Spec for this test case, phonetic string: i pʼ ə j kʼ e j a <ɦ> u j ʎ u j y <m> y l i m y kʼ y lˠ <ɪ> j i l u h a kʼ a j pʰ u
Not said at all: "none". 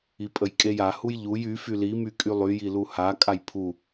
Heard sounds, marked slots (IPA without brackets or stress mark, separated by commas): h, f, y